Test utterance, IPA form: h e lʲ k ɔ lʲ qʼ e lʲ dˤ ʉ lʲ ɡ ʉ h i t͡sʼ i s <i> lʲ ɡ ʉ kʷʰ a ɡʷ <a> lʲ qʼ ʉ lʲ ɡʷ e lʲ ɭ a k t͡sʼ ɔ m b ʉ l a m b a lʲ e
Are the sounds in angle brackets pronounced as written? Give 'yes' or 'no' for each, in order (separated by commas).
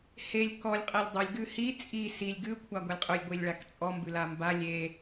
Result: yes, yes